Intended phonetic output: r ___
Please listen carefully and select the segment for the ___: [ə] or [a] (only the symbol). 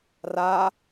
a